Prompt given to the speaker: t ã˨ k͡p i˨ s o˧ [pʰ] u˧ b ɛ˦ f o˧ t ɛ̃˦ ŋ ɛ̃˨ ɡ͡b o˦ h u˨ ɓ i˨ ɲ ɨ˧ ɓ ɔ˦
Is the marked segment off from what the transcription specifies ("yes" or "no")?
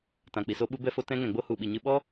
yes